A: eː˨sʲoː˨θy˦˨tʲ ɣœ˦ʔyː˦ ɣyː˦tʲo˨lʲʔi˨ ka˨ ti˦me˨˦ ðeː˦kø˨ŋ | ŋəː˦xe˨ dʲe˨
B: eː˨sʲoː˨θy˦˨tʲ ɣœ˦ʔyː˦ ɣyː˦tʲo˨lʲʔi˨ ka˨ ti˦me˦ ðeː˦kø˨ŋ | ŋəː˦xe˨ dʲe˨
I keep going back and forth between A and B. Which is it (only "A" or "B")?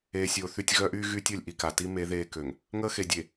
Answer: A